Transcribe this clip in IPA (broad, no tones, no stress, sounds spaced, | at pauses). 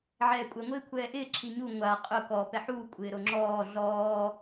ʕ ɛː kʷʼ ɛ ŋʷ ɪː kʷʰ ɛː ʔ ɪː ǁ i ɲ u ŋʷ a qʼ ʊ k ɔ p ɛ ħ uː kʷʼ ɪː ɾ o ŋ͡ǁ ɔː ɮ ɔː